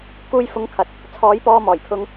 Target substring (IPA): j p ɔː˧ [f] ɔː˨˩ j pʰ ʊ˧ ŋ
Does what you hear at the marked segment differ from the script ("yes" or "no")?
yes